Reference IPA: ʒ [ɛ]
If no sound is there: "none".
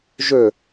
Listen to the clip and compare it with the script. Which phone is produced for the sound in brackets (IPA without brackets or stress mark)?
ø